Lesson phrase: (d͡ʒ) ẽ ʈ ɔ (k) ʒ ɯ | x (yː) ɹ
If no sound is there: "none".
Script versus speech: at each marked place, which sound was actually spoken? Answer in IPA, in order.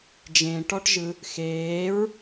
d͡ʒ, ʈ, eː

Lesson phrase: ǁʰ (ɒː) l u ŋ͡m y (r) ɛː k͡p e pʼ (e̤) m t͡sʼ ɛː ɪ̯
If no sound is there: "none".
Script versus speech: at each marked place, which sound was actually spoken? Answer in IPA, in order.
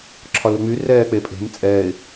ɒ, r, e̤

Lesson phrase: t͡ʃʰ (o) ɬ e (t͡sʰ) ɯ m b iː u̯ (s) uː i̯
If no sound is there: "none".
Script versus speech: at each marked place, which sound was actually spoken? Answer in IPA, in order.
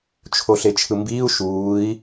o, t͡ʃʰ, ʃ

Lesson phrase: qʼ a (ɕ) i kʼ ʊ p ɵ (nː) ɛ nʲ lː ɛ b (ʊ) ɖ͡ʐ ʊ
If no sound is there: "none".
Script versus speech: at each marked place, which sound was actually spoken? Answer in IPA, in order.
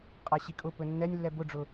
ɕ, nː, ʊ

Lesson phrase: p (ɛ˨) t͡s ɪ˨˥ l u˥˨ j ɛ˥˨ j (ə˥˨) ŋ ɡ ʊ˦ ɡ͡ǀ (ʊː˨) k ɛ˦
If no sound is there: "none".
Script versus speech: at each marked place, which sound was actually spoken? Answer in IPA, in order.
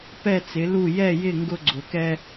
ɛ˥˨, ɪ˥˨, ʊ˨

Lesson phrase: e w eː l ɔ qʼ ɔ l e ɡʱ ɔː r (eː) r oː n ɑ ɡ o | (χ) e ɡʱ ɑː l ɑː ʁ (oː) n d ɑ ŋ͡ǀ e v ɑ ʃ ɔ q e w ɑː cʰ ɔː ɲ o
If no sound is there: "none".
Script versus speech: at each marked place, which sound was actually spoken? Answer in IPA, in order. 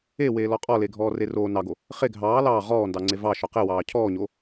e, χ, ɔː

